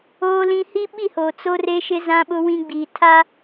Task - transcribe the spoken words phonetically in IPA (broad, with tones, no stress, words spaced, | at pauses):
oː˦lĩ˦ hi˦ɓi˦˨hoː˨ t͡so˦re˦ʃɪ˦ zã˦ɓʊ˦ wĩ˦ɡ͡biː˨ tʰa˦